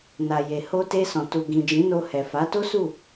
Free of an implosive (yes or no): yes